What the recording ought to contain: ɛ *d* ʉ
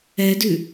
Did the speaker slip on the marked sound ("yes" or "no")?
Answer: no